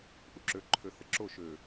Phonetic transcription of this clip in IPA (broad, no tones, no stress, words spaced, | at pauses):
ʔuǁøǃʰø θəǁo ʃø